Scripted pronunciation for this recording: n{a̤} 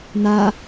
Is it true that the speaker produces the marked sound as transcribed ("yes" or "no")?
no